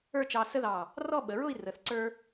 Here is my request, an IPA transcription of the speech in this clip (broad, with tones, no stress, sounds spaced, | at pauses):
ə˞˥˧ t͡ʃ ɑ˧ s ə˥ ð ɑ˧˩ | r ɔ˥˧ ɓ ə˩˧ ɹ ʊ˥˧ i̯ r ə˩˧ θ ǀ ə˞˥